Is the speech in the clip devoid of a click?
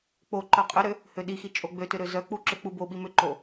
no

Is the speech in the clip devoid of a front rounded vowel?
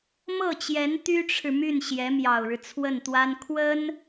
no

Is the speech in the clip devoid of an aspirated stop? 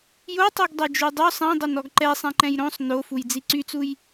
yes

